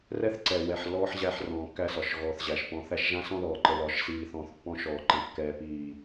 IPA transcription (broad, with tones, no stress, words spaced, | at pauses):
rɛ˦θǀɛ˨ wɛ˨ħlːɔː˦ħʑæ˦˨ħ rɔ̃ː˨kːæ˦ sɒ˨ʃɣɔː˨θʑæ˨ʃ pɔ̃˨˦θæ˦ʃ ʒã˦sɔ̃˦ðɔː˨ǃə˨ lɒ˨˦ʃsiː˨θɔ̃ː˨θ pːɔ̃˦ ʃɔː˨ǃɛ̃˨ kːɛː˦piː˦˨